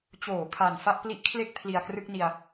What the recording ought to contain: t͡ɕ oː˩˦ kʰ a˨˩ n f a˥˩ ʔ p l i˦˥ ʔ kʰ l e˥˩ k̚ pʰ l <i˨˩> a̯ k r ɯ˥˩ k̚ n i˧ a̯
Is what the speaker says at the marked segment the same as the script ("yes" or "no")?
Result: yes